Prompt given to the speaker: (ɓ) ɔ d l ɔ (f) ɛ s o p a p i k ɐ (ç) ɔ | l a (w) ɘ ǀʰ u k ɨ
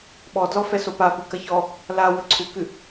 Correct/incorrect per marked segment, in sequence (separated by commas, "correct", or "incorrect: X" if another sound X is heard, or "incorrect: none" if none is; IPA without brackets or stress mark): correct, correct, correct, correct